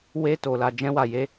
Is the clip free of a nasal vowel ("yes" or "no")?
no